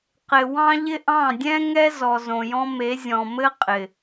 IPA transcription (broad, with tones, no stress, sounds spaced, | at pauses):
q ɪ˨ w ɑ̃˦ ʎ ɪ˦ ʔ ɑ̃˦˨ dʲ ɛ̃˦ ŋ ɛ˦ z ɔ˨ z õ˨ j ɔ̃˦ m e˨˦ zʲ ɔ̃˨ m ɘ˦ qʼ ɪ˨